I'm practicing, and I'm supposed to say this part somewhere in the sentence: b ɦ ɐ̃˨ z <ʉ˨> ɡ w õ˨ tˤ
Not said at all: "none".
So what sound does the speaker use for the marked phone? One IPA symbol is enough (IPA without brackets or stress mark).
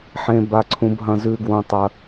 ʉ˨